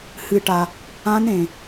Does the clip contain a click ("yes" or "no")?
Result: no